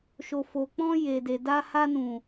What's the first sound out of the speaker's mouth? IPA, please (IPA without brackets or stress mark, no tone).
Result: ʃ